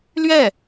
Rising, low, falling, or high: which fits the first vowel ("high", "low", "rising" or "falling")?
falling